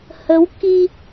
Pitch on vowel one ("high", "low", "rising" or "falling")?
rising